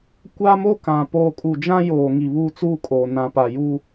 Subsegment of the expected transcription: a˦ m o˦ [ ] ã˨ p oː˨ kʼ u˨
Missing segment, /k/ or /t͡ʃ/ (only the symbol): k